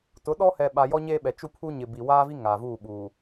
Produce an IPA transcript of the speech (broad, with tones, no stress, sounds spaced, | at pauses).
t ʊ˨˦ ɗ ɔ˦ h ɛ˨ ɓ a˨ j ɔ˦ ɲ e˦ ɓ ɛ˨ t͡ʃ u˦˨ pʰ u˦ ɲ ɪ˨ b i˨ w aː˦ v i˦ ŋ a˨ v uː˦˨ ɓ uː˨